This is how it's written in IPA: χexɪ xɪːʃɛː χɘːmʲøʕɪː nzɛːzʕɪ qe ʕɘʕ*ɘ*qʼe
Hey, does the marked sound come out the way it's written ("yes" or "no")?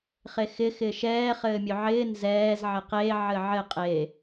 yes